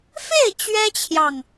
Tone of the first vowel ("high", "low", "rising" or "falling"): falling